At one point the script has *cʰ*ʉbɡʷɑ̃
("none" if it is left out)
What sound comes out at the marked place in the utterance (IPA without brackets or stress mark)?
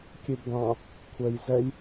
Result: kʲ